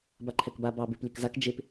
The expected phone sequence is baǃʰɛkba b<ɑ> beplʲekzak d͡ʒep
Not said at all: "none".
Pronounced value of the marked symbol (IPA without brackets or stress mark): ɑ